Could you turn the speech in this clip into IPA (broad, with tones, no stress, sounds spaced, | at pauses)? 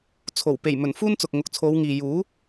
t͡sʰ o˨˩ w p e˨˩ j m ɵ˨˩ n f uː˥ n t͡s ʊ˨ k̚ ŋ ʊ˨ k̚ t͡sʰ o˨˧ w ŋ iː˨ j uː˨˥